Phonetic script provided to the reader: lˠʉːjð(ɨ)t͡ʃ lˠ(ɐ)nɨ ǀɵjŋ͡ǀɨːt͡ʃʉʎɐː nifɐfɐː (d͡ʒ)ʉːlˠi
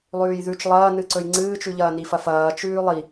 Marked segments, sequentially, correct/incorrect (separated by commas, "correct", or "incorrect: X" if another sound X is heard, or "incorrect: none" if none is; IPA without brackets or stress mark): incorrect: ʉ, incorrect: ɐː, incorrect: t͡ʃ